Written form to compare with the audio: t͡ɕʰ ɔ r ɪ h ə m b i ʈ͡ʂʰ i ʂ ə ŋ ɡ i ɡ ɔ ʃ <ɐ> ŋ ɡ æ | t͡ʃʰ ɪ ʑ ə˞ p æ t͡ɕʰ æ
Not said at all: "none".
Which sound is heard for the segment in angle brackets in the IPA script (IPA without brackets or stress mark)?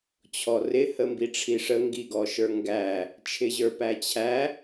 ə˞